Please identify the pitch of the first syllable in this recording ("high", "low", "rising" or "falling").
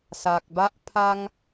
low